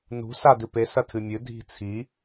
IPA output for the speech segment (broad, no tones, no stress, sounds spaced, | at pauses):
n ṳ s a d ɨ p e s ɐ tʰ ɨ mʲ ɨ dʱ i̤ t͡sʰ i